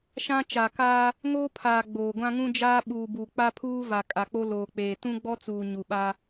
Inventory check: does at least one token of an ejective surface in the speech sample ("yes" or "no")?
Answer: yes